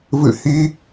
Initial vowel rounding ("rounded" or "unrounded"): unrounded